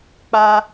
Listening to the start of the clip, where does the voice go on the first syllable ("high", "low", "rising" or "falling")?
high